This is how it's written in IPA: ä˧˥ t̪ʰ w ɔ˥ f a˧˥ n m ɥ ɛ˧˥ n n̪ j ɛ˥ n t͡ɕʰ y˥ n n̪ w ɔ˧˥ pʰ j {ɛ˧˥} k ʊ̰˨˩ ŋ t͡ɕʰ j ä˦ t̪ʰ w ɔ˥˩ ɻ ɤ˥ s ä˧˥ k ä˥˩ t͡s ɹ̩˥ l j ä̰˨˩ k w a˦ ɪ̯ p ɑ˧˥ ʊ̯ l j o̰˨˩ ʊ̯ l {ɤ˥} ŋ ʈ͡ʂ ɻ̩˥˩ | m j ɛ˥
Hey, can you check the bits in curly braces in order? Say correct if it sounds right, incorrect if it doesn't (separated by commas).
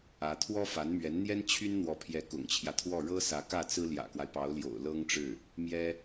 correct, correct